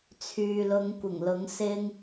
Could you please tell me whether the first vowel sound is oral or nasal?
oral